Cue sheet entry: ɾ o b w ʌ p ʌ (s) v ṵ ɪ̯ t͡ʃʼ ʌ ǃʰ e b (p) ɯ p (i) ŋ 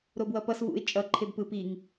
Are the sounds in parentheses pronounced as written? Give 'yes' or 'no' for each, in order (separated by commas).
yes, yes, yes